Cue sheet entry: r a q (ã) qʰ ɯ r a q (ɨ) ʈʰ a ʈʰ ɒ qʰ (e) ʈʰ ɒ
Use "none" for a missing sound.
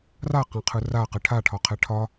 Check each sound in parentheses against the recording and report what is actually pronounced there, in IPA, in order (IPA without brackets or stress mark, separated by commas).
ã, ɨ, ɛ